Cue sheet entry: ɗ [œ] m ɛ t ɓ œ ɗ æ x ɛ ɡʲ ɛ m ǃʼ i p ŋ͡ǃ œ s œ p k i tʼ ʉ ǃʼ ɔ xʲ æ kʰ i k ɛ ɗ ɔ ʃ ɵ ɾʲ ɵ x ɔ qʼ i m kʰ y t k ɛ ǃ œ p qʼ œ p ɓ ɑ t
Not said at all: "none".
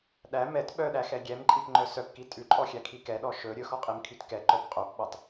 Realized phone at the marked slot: æ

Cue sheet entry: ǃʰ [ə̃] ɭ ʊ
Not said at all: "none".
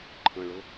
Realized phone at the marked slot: ə̃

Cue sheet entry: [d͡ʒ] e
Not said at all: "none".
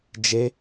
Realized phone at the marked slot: d͡ʒ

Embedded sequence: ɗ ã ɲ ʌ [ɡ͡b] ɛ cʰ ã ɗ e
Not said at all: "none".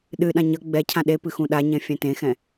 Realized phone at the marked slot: ɡ͡b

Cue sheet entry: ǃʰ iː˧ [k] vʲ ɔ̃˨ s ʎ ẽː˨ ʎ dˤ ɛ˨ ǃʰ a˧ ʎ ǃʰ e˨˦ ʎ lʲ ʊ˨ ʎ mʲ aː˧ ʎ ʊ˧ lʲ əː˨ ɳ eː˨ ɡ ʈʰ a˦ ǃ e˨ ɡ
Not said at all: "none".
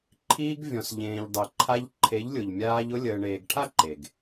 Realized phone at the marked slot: ɡ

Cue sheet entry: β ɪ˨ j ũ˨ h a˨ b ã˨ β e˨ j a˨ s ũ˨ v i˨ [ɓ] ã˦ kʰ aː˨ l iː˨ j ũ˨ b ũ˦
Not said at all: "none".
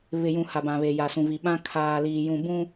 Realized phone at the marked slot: ɓ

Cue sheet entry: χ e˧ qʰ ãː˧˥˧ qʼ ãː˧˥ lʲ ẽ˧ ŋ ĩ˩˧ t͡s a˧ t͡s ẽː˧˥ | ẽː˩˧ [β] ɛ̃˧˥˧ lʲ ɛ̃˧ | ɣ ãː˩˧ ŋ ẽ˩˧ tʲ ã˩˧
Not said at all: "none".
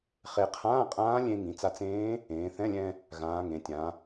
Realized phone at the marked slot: θ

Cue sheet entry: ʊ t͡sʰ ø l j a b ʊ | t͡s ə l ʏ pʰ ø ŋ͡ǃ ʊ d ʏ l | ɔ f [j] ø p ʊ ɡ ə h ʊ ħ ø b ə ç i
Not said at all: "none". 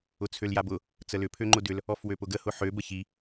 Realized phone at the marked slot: w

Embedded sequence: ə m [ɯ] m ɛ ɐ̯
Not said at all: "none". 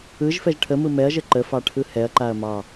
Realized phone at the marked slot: ɯ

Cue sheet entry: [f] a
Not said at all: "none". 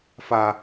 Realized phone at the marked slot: f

